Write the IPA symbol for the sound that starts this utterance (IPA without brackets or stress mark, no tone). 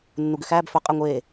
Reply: nː